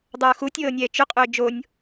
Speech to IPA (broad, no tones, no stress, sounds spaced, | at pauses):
dˤ ɤː x u tʲ ɤː nʲ ɛː t͡ʃ ʏ qʼ ʏː d͡ʒ o nʲ